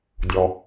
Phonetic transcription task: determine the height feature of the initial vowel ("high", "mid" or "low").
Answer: mid